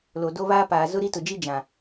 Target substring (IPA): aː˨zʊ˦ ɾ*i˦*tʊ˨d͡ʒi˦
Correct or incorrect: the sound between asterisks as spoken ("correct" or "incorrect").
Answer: correct